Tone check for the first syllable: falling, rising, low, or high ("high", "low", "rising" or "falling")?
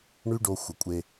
high